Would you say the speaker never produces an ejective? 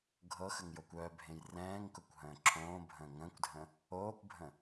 yes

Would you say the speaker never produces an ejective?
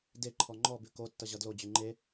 yes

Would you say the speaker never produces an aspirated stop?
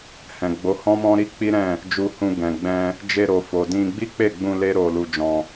yes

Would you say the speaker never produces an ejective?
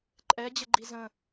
no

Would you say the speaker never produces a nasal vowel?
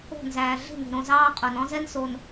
no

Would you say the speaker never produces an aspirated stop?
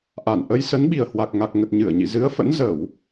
yes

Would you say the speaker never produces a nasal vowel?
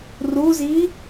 yes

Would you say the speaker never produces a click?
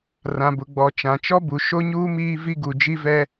yes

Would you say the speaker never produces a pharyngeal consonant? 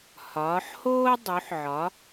no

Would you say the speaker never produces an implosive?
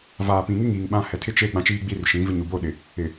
no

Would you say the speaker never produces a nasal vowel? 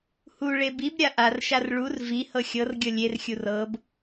yes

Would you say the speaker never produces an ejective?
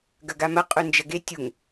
no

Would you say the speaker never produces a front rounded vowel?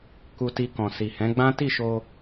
yes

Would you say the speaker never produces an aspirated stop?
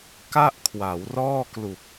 no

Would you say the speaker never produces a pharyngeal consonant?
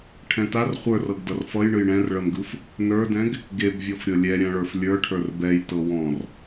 yes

